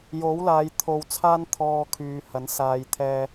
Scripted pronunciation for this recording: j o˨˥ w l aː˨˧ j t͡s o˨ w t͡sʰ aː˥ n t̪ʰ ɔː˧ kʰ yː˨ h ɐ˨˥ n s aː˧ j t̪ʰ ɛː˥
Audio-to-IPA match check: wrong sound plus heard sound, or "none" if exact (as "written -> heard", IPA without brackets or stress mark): t͡s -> t̪ʰ